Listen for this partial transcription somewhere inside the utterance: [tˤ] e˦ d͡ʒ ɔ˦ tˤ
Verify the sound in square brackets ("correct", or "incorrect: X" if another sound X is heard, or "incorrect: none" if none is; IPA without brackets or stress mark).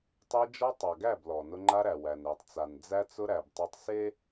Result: correct